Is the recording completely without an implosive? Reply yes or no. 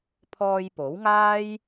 yes